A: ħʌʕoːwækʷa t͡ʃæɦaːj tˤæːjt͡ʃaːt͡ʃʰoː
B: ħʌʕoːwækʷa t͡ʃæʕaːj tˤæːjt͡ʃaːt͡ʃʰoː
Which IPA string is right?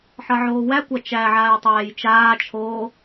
B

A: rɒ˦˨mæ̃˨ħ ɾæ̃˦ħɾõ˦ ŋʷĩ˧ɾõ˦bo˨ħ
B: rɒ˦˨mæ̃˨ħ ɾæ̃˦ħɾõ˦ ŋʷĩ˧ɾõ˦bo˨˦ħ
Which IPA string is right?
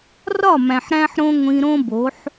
B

